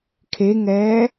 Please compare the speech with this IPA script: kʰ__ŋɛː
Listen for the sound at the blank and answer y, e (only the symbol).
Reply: e